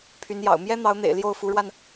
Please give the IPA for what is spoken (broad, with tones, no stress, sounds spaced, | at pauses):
pʰ y˧˥ n j ɑ̰˨˩ ʊ̯ m j ɛ˥ n̪ ɑ˧˥ ʊ̯ n̪ ḛ˨˩ ɪ̯ l j o˥˩ ʊ̯ f u˧˥ ɻ w a˧ n